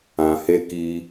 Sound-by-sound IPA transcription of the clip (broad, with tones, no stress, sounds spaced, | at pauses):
ã˨ h e˧ k i˧